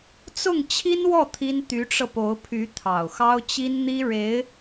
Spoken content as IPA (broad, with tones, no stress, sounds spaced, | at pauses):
t͡s ʊ˥˩ ŋ t͡ɕʰ i˥ n w ɔ˥˩ t̪ʰ i˥ n t̪ y˧˥ ʈ͡ʂ ɤ˧ p o˧˥ ʊ̯ pʰ y˧˥ t̪ʰ ɑ˨˩ ʊ̯ x ɑ˥ ʊ̯ t͡ɕ i˥ n n̪ i˥ ɻ e˧˥ ɪ̯